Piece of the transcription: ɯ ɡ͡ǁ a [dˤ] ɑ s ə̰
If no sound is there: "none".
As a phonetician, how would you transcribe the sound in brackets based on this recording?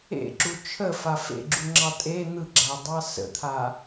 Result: dˤ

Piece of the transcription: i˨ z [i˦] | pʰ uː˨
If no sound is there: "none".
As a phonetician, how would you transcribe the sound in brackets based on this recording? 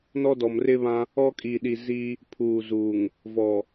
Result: i˦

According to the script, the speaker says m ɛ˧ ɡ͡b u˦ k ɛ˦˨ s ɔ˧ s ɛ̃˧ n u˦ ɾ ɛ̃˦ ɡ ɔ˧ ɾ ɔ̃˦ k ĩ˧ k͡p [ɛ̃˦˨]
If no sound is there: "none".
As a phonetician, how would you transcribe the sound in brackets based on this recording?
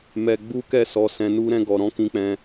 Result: ɛ̃˧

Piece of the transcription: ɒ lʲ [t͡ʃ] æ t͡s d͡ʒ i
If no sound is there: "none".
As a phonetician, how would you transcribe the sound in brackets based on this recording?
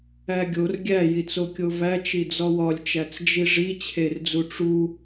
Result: t͡ʃ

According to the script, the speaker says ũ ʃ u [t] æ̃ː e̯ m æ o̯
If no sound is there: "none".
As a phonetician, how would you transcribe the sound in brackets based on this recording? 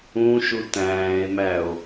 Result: t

